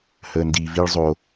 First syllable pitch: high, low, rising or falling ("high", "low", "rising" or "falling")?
low